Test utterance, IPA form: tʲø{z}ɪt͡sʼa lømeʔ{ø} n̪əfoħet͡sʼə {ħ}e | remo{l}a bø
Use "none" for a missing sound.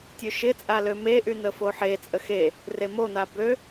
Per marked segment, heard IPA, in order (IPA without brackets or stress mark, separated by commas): ʃ, y, x, n̪